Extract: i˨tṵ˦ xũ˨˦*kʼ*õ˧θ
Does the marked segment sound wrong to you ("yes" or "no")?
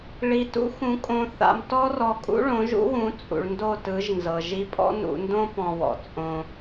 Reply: no